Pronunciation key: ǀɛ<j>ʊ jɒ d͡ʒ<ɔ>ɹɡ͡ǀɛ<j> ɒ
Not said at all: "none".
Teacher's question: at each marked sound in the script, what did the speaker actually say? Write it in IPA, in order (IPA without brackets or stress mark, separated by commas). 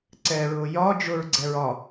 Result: ɹ, ʊ, ɹ